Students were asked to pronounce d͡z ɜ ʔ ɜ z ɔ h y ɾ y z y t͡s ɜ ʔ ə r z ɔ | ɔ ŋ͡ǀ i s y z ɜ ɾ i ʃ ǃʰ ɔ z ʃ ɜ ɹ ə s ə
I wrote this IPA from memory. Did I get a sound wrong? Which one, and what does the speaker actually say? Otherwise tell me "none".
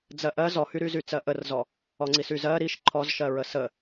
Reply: none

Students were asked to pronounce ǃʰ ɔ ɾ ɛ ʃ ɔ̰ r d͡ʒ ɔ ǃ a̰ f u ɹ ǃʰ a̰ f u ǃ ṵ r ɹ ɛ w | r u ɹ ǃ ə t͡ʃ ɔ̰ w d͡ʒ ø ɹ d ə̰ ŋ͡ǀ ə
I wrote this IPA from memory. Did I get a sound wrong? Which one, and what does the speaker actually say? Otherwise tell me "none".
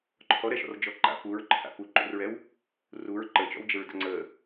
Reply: ø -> ə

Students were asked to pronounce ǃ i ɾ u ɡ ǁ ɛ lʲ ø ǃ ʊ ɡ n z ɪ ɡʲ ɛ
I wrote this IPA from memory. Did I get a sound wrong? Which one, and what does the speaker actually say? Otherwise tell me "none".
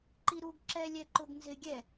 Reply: ø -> ɛ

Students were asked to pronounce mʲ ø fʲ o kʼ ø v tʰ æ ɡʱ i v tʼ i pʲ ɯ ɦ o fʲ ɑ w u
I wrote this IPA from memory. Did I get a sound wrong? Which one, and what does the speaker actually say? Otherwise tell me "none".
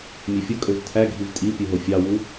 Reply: none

